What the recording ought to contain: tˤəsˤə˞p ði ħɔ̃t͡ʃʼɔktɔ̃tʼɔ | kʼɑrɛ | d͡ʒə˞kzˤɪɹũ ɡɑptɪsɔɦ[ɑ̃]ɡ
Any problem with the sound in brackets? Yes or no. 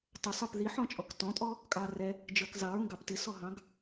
no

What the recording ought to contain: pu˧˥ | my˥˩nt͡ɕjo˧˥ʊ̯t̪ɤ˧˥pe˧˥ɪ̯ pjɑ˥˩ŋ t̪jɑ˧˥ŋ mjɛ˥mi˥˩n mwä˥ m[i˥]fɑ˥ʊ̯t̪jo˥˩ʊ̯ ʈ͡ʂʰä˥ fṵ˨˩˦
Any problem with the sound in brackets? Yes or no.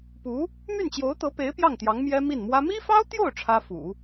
no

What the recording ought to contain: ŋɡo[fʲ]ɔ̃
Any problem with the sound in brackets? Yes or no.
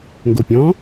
yes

